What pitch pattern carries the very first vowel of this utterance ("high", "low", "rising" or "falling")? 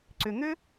low